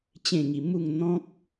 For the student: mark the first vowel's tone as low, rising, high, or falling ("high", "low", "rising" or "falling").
falling